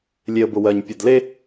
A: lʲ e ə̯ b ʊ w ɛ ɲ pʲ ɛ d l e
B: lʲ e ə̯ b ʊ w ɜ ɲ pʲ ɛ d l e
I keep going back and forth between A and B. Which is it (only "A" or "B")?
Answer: B